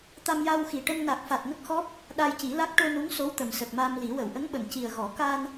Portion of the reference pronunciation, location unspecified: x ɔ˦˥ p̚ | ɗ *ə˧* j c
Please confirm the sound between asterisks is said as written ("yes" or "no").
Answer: no